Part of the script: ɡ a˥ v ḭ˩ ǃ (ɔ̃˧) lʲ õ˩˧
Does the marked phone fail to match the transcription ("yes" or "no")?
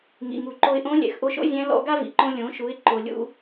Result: yes